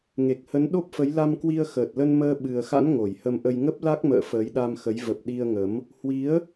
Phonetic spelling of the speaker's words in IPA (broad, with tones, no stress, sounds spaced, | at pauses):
ŋ e˨˩ k̚ h ə˨˦ n ɗ o˦˥ p̚ f ə˨˦ j l a˧ m k w i˧ ə̯ x əː˨˩ t̚ l ə˧ n m əː˧ ɓ ɨ˨˩ ə̯ x a̰˧˥ n ŋ o˧˩ j h ə˧ m ʔ ə˧ j ŋ ə˦˥ p̚ l a˦˥ k̚ m ə̰ː˧˨ f əː˨˦ j ɗ a˧ m x ə˨˦ j v ə˨˩ p̚ ɗ i˧ ə̯ ŋ ə˨˦ m | h w i˨˦ ə̯